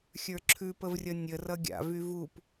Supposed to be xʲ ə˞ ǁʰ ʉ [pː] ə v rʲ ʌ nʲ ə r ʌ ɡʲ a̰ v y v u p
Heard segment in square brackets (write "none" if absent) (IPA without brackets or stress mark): p